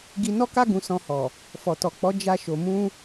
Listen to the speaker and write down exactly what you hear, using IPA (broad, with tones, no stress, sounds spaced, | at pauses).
ɡ i˧ n ɔ˦ k a˦ ɡ ũ˧ s ɔ̃˧ h ɔ˨ | f ɔ˨ t ɔ˨ k͡p ɔ˨˦ d͡ʒ a˧ ʃ o˨ m ũ˧